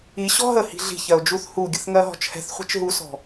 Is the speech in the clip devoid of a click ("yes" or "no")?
yes